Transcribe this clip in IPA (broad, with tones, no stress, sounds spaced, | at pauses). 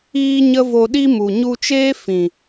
iː˦ ɲ ə˦ v o˧ ɗ i˦ m u˨ ɲ u˧ t͡ʃ eː˦ f ĩ˨